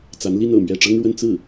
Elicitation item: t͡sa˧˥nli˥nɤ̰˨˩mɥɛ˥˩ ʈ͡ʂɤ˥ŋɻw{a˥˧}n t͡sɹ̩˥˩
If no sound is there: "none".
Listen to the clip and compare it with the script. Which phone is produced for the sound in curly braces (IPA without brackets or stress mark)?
ə˥˧